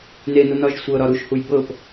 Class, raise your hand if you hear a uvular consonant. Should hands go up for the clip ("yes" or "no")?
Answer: no